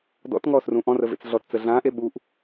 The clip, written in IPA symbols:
d ɔ̰ t ŋ ɔː s r ũ ʔ ɔ̃ r ə v ḛ t͡s ɮ ɔ t t͡s ə ɮ ãː ʔ e ɓ u ʔ

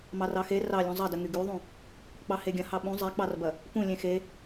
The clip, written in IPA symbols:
m ɑ r ɑ x e r ɑ lʲ ũ zˤ ɐ d ə ŋ y ɡ y ðˤ ũ | k͡p ɑ h e ɡʲ ɐ̃ h ɑ ɓ ũ zˤ e k͡p ɑ r b ɐ | p ũ lʲ ẽ x e

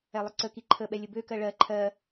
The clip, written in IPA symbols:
ɛ lˠ ə ǀ ə k i ǃʰ ə ɓ ɛ lʲ ə b ø k ɜ ɭ ɜ ǃʰ ɜ

